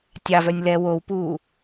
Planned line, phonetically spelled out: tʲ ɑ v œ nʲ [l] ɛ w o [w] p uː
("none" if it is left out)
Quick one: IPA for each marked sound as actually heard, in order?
l, w

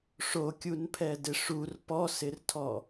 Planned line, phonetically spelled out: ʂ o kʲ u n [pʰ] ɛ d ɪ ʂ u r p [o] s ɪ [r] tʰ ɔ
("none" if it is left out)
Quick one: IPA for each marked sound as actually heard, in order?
pʰ, ɔ, r

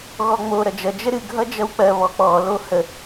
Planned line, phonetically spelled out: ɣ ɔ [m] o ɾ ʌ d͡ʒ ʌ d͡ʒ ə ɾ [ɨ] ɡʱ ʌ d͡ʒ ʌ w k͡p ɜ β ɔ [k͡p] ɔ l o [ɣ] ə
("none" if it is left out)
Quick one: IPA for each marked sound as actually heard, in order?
ŋ͡m, ɨ, k͡p, h

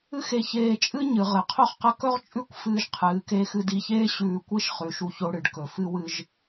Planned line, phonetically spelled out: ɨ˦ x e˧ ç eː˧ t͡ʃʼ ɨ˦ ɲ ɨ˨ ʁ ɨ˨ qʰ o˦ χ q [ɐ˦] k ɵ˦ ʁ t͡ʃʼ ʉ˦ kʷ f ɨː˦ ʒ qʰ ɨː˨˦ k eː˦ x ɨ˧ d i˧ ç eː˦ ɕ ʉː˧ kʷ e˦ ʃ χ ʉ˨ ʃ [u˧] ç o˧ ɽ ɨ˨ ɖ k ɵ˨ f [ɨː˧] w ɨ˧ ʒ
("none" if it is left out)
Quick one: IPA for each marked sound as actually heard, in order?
ɐ˦, u˧, ɨ˧

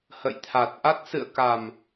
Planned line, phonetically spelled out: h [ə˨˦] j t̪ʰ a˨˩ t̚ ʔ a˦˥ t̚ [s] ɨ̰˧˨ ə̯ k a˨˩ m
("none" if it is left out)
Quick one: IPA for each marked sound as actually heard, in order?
ə̰˧˨, s

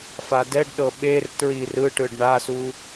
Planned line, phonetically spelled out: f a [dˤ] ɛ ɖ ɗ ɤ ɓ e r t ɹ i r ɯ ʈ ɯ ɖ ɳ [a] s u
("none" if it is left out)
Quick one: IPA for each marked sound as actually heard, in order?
d, a

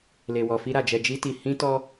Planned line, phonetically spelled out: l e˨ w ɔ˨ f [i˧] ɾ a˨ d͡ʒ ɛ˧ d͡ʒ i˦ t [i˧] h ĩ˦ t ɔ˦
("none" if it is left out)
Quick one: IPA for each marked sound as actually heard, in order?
i˧, i˧

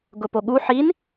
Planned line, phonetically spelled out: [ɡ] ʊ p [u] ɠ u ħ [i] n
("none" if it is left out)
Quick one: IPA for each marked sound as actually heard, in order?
ɡ, o, i

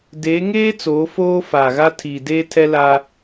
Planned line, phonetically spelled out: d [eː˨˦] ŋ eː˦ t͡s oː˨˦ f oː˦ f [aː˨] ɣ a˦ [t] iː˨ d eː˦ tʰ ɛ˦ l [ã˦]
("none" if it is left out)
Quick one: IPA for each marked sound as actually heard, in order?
eː˨˦, aː˨, tʰ, a˦

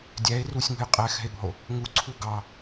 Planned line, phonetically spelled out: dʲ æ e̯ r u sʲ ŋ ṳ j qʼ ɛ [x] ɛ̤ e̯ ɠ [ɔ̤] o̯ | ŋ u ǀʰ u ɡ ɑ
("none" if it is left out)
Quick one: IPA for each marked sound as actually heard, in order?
x, ɔ̤

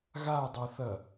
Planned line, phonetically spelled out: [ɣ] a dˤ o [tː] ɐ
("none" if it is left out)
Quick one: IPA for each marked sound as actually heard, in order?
ɣ, θ

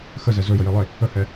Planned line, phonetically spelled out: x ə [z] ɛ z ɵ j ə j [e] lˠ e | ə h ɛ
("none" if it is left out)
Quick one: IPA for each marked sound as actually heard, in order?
z, e

